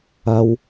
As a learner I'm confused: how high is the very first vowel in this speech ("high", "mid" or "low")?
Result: low